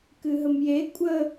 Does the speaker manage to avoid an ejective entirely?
no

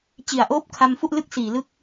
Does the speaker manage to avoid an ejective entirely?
yes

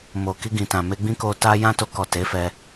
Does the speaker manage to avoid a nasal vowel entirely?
no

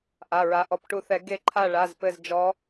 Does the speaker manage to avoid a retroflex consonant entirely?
no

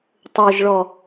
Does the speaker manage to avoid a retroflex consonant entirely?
no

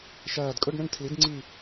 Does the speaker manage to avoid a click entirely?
no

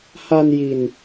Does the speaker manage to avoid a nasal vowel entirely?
yes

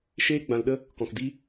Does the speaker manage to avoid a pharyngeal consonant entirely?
yes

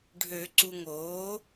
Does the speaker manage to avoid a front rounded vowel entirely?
no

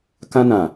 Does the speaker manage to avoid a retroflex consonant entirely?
yes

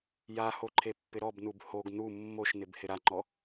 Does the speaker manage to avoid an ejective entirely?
yes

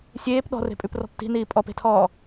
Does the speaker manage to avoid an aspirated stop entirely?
no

